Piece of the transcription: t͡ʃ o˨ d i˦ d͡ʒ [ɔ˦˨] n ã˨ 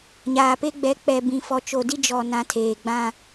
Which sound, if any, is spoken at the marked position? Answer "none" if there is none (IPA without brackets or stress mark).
ɔ˨